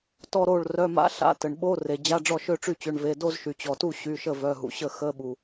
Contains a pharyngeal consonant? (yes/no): no